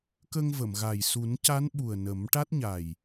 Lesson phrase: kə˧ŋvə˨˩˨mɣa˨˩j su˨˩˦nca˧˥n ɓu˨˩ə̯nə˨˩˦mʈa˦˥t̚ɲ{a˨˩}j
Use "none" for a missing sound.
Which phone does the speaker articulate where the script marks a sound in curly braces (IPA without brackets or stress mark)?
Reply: a˨˩